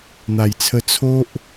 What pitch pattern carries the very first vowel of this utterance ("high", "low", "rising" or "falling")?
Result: low